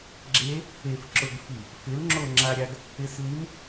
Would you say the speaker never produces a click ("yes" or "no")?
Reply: no